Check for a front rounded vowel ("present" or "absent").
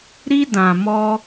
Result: absent